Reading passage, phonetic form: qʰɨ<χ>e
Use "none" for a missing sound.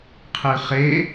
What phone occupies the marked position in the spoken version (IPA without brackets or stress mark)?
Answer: χ